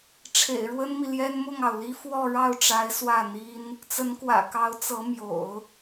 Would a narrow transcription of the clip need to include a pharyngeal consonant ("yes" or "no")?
no